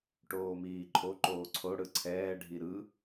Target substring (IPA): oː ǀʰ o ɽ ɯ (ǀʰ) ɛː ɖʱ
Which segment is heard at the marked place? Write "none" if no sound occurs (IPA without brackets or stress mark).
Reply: ǀʰ